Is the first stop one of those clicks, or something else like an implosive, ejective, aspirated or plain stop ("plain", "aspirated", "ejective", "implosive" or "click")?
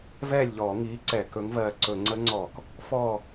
click